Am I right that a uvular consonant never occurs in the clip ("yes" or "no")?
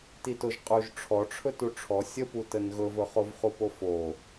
no